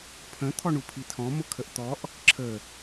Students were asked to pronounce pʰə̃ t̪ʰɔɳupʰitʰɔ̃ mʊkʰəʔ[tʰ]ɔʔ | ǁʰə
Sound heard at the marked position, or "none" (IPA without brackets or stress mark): t̪